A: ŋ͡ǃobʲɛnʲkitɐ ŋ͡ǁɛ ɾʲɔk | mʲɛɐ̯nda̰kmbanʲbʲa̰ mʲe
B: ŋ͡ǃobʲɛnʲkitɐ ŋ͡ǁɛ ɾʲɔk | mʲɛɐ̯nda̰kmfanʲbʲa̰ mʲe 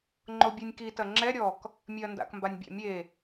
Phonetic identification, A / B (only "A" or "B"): A